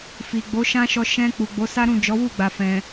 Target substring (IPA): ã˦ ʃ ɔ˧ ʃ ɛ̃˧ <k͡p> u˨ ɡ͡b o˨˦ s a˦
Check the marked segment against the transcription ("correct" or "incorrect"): correct